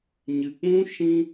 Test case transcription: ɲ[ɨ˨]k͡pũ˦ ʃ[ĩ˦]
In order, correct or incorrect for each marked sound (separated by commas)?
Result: correct, correct